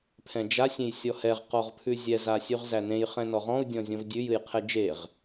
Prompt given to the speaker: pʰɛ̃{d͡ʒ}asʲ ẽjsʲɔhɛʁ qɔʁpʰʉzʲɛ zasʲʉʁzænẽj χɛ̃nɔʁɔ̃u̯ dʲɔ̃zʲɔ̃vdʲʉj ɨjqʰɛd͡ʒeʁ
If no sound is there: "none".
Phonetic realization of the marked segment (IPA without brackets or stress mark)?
d͡ʒ